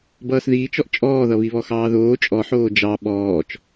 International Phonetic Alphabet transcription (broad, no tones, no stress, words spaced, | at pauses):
bʌːsðiːt͡ʃ ɔʔt͡ʃʼɔːðʌ βiβɔxɑːðoː t͡ʃʼɔħoː d͡ʒɑ ɓɔːt͡ʃ